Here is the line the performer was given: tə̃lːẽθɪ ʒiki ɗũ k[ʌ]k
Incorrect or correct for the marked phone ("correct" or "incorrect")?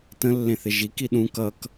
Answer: correct